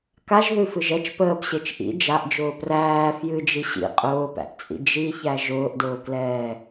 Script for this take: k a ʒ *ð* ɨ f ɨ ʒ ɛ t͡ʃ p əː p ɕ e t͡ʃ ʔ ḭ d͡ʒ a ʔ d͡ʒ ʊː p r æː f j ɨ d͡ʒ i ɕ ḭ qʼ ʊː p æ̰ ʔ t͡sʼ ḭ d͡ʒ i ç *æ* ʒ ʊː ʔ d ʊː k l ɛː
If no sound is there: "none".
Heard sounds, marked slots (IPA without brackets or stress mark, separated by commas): ð, æ